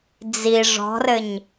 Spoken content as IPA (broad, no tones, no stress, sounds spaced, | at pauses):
d͡z i ʐ ɔ̤ r ɘ ɲ